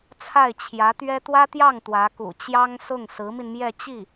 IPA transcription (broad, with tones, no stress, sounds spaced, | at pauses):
t͡sʰ a˥˩ ɪ̯ t͡ɕʰ j ä˧˥ t̪ ɥ ɛ˥ t̪ w ä˥ t̪ j ɑ˥˩ ŋ t̪ w ä˧˥ k ṵ˨˩ t͡ɕ j ɑ˥ ŋ s ʊ˥˩ ŋ s ɹ̩˧˥ m i˧ n m j ɛ˥˧ t͡ɕ i˥˩